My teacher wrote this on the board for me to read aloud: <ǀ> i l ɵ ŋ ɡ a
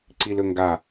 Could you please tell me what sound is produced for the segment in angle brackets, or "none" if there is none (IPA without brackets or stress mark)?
ǀ